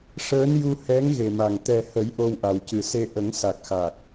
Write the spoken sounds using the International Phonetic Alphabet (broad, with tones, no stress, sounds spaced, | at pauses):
ʂ əː˧˥ n j u˧ h ɛ˧˥ ŋ ɣ e˨˩ m a˨˩ ŋ t̪ ɛ˨˩ h ə˨˩˦ j ʔ o˧ w ʔ a˨˩ w c ɨ˨˩ s e˧ ʔ ə˨˩˦ ŋ s a˨˩ k̚ x a˨˩ k̚